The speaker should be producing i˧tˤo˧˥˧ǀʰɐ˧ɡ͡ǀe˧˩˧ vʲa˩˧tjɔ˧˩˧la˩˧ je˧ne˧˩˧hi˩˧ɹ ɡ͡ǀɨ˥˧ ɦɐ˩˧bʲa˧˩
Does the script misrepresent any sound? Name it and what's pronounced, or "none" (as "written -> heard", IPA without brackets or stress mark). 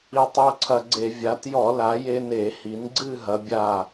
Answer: ɹ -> n